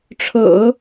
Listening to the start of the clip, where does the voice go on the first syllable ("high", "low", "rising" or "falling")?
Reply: low